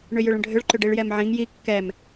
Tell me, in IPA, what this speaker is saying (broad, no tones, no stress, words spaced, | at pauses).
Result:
ɳʏjʏɭə̃ɖʱʏɭ ǃʏɖiɭjɛmʕĩŋ ji kːɛm